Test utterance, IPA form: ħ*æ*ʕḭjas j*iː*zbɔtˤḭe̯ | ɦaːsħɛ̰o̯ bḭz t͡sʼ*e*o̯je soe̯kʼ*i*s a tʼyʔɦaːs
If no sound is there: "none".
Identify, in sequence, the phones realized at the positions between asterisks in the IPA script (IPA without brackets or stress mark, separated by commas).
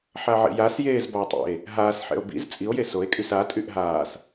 a, eː, i, y